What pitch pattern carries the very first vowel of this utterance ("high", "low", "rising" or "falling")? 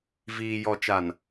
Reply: low